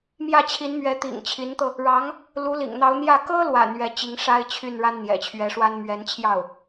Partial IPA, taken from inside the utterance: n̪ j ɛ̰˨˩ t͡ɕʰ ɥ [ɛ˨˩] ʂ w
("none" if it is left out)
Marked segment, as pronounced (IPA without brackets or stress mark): ɛ˧˥